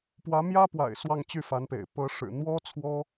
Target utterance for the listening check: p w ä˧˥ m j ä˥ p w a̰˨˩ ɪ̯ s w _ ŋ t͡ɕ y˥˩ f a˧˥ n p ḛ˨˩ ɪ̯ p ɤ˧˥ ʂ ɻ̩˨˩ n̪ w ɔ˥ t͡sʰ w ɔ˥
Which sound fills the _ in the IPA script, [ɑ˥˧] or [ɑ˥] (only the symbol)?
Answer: ɑ˥˧